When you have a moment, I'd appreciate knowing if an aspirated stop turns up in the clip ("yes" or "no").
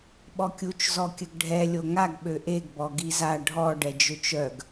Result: no